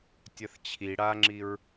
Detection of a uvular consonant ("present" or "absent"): absent